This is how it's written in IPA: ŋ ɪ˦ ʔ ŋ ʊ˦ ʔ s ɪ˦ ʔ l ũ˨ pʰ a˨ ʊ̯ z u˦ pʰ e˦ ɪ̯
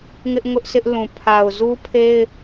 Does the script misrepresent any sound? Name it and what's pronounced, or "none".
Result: none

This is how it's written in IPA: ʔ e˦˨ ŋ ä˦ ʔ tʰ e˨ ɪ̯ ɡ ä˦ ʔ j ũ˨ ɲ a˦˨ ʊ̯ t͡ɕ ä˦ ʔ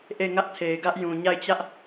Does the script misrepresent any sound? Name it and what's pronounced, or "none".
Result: ʊ̯ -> ɪ̯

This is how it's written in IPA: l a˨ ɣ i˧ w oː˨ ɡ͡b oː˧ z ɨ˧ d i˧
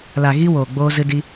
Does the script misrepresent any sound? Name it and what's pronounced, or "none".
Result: none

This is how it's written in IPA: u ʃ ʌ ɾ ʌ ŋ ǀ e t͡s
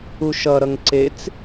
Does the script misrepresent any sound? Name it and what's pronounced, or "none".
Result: none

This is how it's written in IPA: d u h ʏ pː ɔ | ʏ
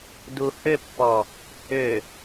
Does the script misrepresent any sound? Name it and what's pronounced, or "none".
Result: none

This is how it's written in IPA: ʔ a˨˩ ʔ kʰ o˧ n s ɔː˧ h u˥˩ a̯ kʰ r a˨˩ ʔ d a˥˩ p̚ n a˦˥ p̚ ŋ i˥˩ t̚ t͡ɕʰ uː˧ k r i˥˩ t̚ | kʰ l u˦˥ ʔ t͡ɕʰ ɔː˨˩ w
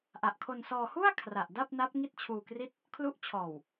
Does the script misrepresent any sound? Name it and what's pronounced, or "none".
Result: none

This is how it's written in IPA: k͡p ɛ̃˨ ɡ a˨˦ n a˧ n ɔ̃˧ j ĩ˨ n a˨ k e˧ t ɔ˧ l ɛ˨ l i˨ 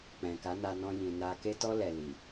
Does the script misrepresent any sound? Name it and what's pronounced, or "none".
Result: ɡ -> k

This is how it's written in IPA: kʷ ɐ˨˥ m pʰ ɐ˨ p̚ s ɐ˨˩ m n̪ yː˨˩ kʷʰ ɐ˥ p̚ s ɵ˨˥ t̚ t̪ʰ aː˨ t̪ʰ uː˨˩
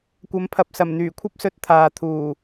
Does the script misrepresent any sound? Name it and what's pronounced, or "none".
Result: none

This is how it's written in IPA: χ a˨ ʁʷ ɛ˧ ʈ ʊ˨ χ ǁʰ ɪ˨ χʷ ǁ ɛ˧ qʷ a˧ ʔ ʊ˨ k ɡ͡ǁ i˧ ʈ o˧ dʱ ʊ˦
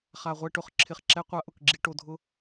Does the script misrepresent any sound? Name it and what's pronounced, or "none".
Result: χʷ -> χ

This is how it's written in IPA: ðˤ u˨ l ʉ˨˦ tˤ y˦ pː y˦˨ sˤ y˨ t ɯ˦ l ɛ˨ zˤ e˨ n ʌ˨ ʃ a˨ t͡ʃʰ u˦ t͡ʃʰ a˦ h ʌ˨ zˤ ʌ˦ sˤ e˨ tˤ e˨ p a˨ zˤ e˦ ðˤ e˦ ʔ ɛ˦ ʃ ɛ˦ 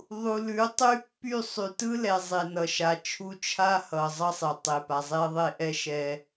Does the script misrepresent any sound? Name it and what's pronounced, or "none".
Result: none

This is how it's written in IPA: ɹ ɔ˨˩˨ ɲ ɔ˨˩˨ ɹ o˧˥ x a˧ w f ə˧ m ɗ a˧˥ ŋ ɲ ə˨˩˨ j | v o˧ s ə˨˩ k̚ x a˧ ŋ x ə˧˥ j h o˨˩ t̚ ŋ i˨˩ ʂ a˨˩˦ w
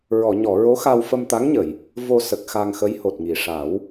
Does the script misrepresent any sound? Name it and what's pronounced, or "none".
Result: ɗ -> t̪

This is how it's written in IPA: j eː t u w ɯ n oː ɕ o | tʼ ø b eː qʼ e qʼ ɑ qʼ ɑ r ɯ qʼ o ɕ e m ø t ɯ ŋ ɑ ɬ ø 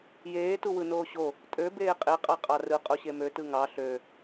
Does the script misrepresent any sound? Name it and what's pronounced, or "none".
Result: none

